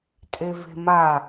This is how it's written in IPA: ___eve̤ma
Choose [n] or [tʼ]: tʼ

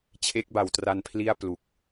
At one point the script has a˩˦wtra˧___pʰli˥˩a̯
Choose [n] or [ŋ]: n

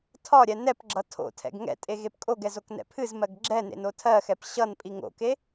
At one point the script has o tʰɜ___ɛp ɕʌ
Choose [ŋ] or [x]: x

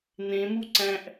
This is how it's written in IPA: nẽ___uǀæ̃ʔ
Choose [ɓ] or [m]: m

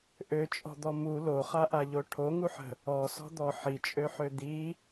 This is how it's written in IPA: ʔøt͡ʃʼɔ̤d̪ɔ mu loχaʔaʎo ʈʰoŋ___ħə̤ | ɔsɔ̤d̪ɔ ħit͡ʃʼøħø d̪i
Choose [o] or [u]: u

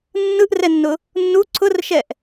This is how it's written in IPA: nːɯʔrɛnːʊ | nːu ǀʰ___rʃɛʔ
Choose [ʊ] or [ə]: ʊ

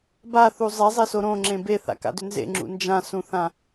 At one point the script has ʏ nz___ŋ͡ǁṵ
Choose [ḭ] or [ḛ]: ḛ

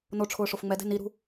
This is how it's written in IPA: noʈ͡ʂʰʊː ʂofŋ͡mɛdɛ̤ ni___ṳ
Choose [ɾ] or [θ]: ɾ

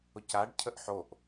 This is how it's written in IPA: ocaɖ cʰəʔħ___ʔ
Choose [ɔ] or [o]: o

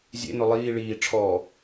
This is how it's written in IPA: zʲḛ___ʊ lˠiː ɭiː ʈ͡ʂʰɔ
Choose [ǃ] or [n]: n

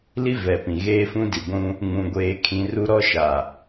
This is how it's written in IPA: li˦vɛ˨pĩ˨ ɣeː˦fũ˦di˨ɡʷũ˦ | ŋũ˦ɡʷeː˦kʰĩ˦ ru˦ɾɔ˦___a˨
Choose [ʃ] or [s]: ʃ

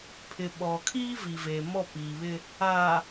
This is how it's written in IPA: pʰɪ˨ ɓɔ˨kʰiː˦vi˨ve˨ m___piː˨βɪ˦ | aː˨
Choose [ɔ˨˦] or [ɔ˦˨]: ɔ˦˨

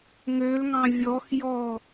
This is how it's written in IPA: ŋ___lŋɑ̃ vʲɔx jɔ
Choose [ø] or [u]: ø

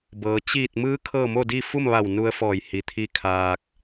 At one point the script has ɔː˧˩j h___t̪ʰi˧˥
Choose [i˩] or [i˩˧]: i˩˧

